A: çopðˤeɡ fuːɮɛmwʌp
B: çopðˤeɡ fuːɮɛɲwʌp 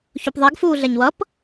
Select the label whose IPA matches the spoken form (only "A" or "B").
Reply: B